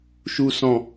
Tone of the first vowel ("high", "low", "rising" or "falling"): low